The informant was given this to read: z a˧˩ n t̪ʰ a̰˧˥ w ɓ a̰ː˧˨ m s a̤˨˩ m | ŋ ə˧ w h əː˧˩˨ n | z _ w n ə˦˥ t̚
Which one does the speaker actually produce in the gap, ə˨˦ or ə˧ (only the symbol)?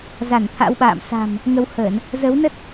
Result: ə˨˦